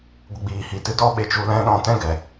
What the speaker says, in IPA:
ɡʷ ə˧ ɡ͡b iː˨ h i˨ t ɨ˦ d ɔ˦ ɓ e˧ t͡ʃ u˧ l ɛ̃˦ ɗ ɔ̃˧ t ɛ̃˦ ɡ ɛ˨

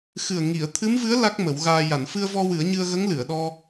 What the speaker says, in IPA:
x ɨ˨˩ ə̯ ŋ i˨˩˨ ə̯ t̪ʰ ɨ˧˥ m v ɨ˧˥ ə̯ l a˦˥ k̚ m ə˨˩˦ w ɣ aː˧ j a˨˩˨ n f ɨ˧ ə̯ v ɔ˧ w ɨ˨˩˦ ə̯ ɲ ɨ˧ ə̯ ɣ ə˧˥ ŋ l ɨ˨˩˨ ə̯ ɗ ɔ˧

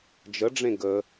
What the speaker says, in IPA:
d͡ʒ ə ɖ͡ʐ ẽ ɡ ə

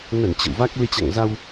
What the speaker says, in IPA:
n ə˧˩ n t͡ɕ ə̰˧˨ w v a˦˥ k̚ l ɨ˧ t͡ɕ a̰˧˨ ŋ z a˧ w

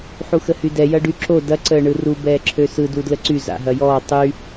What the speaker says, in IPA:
ħ u x ə h y d ɛ j ɐ ɖ y ǁ o d ɐ ǀ əː ɳ ɯ r u b ɛː ǁʰ ø s ɯ d u d l ə ǀ y z a̰ ɦ ɐ j ɔː tˤ y

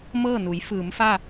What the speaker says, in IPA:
m ɤː˥˨ n u˩˧ j f ɯː˩˧ m f a˥˨

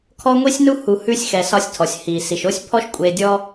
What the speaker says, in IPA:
kʰ ɔ˥ ŋʷ i˥ sʲ n u˥ h u˨ h ʉ˦ sʲ x ɛ˨ s ɒ˦ sʲ tʰ ɔ˩ sʲ h i˩ s i˩ ʃ o˥ sʲ pʰ ɔ˦ ʃ kʷʼ e˨ dʲ ɔ˥

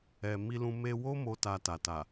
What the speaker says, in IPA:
ɛ˨ m i˧ l ũ˧ m e˧ w o˦ m o˦ t a˧ t a˨ t a˨

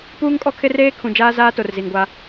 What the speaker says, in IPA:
p uː˦ ŋ kʼ ɔ˦ kʰ ɪ˦ r eː˦ kʰ ũ˨ d͡ʒ aː˦ z aː˦ t o˨ r z i˨ ŋ ɡʷ a˦

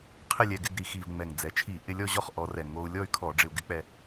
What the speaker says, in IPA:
qʰ ɪ˥˧ lʲ ɛ˧ ɡ ɪ˥˧ ɡ ɾ i˧˩˧ x i˨˩ v ŋ͡m ɛ˨˩ ŋ d͡z ɛ˩˧ t͡ʃʰ i˧˩˧ ʔ ɪ˧ lʲ ɔ˥˧ ʑ ɔ˥˧ χ ʔ ɔ˩˧ r ɛ˨˩ ŋ o˧ u̯ lʲ ɔ˥˧ y̯ kʰ ɔ˧˩˧ ɖ͡ʐ ɪ˧ u̯ ɡ ɪ˧˥ k͡p ɛ˧

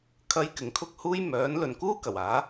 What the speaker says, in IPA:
kʰ ɐ˥ j k ɪ˨ ŋ kʰ ʊ˥ k̚ h uː˥ j m œː˨˥ n l ɵ˨ n k uː˥ k ɐ˨˩ w aː˨˥

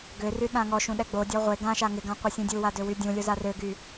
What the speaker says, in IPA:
ɡ ø r y ɗ ã ŋ ɔ ʃ ũ ɗ ɛ ɡ͡b o dʲ ɔ ʁʷ e ɡ ã ʃ a ŋ ɪ ɡ ã qʷ ɛ sʲ ũ dʲ u w a d ø w y dʲ ũ lʲ o z a r ø ɡ y

